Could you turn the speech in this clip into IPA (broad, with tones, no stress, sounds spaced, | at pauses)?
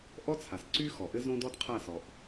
ʔ ɔ˦ t͡sʰ a˨ s ǀ y˦ x ɔ˨ ʔ ɘ˦ z õ˦ d ɔ˦ d qʰ a˦˨ s ɔ˨ ʔ